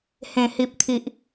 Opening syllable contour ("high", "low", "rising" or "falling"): low